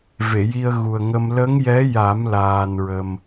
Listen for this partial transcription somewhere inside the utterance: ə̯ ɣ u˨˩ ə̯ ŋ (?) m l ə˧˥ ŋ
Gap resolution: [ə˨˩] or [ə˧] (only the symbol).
ə˧